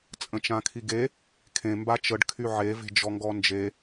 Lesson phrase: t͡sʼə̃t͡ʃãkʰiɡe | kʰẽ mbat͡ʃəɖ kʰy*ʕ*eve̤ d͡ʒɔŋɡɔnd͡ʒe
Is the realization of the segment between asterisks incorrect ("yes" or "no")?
no